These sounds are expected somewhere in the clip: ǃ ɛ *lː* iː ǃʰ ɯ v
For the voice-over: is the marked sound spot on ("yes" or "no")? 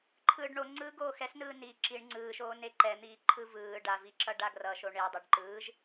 no